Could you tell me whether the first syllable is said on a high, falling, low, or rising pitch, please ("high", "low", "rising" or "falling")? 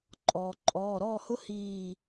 low